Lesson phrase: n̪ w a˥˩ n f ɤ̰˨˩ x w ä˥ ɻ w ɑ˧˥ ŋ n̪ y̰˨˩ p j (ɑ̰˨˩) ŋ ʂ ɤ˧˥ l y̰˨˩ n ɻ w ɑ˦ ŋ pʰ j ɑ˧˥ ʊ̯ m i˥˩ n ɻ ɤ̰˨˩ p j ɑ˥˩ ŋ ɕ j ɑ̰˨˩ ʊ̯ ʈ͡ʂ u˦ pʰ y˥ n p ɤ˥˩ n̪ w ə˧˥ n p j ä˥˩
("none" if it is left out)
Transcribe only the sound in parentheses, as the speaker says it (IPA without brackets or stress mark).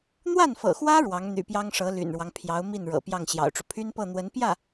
ɑ˥